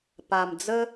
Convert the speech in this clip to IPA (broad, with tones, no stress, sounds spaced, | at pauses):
p a˨˩ m d͡z ə˦